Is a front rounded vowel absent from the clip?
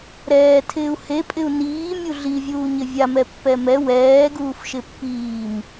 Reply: yes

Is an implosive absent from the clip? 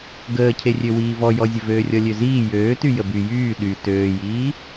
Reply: no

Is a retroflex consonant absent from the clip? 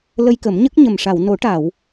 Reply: no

